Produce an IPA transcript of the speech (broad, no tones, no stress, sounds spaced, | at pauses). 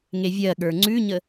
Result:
ŋ e vʲ ɜ ɠ ə˞ ŋ͡ǀ ʉ ɲ ə